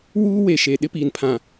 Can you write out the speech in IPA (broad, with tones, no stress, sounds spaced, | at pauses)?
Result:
w uː˦ w e˨ ʃ e˨ ɗ ɪ˦ p iː˨ n pʰ ã˨